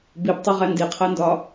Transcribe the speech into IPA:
bibtˤoʁæ ndiqʰændɒ

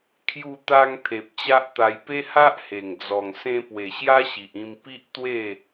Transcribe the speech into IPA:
kʰju˧t̪a˧ŋ t̪ʰe˨p̚t͡ɕa˦ʔt̪a˧j pe˦ha˦ʔhe˨˩ŋ d͡zɔ˨˩ŋ sẽ˧pwe˨˩ ɕja˦ɕi˨ʔĩ˧m pi˦ʔt̪we˥˧

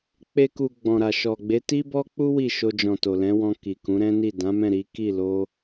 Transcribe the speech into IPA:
k͡pe˧ku˨ ɡ͡bɔ̃˨ɾa˨ ʃɔ˨ɡ͡be˨˦ ti˦bɔ˦k͡pu˦ wi˦˨ʃo˧d͡ʒɔ̃˨ to˨lɛ̃˨˦wɔ̃˧ ki˨kũ˨˦ɾɛ̃˦ni˦˨ dã˨˦mɛ̃˦˨ ɾi˨˦ki˦˨ lo˧

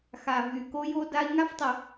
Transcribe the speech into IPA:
xa˨vy˨ ko˦ jo˦da˦i̯ ŋa˦ftˤə˨

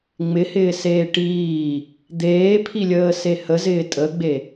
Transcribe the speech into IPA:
ŋ͡mɪhɪːseː ʈiː | d̪eːpʰilʲəːse həzɪː tʼəɡ͡be

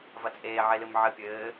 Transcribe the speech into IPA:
vɐt͡sʼeː ʕelɨmʕɘ pʲɘː

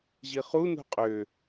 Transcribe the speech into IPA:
ʑiχu nṳqʼø

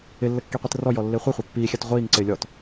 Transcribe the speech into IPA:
ɪlːə kːiqʷitrɔjɔ lːɪːχʷɛχʷa pːiːxʲat ʁʷiːŋǀɪː lʲɔt

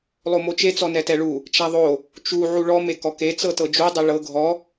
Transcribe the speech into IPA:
lˠomot͡ʃe t͡sɔnɛtɛɭu | t͡ʃaðˤo | t͡ʃu ʕuɭɔ mekɔke t͡sɤtɤd͡ʒu dˤeɭɤ ɡʱɔ

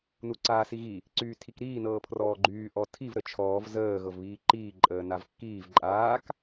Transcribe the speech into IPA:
nuǀaːsiɣi | ǀyːtʰikɾiː nɤːpʰrɔːɡ͡ǃyː ʔɔtʰiv ɾət͡ʃʰɔːv zəː ɣɤvβiːǃiː ǃʼəːnavkːiːv ǃʼaːk

